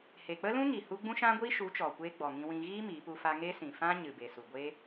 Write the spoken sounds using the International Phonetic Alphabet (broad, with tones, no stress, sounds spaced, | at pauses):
h e˨ k͡p ə˦ l ũ˦ ŋ i˨ h u˦ ɡ͡b ũ˦ ʃ ã˦ ɡʷ i˦ ʃ u˨˦ t͡ʃ ɔ˨ kʷ eː˧ ɡ͡b ɔ˨ ŋ ĩ˧ w ĩ˧ ɣ iː˦ m iː˨˦ p u˦ f a˧ ŋ e˦ s ĩ˨ f ã˦ ɲ ɨ˨ b e˨ s u˨ ɡʷ e˦